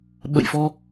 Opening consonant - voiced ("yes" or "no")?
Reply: yes